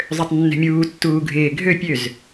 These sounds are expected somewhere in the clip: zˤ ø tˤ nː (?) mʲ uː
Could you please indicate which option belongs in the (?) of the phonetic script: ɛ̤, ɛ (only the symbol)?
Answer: ɛ̤